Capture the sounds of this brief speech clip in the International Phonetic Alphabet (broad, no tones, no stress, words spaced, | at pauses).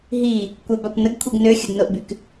ɦi | kʷœbakʷ nəɡkʷʰiɡ nøxʲədnoʔbyk